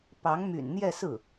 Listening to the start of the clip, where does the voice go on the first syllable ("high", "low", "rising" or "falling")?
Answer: rising